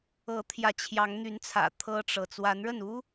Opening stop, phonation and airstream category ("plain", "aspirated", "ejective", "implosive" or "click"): aspirated